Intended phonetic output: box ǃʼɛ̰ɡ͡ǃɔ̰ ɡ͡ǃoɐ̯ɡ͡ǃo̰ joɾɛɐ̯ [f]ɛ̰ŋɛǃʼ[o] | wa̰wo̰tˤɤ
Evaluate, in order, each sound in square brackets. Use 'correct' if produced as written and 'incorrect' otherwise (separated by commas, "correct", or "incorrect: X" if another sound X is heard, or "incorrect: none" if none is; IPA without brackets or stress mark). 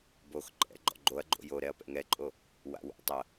incorrect: p, correct